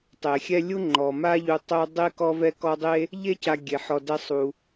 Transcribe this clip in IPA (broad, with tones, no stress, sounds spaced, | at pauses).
tˤ e˩ xʲ ɛ˦ lʲ u˥ ŋ͡ǃ ɔ˩ m a˦ ʎ u˨ tˤ œ˥ dˤ e˥ k ɔ˦ v ɛ˦ k ɔ˦ dˤ e˥ | ʎ e˥ c a˨ ɡʲ e˩ ħ ɔ˨ d ɛ˦ sˤ u˩